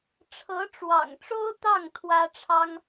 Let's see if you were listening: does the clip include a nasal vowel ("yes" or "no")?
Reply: no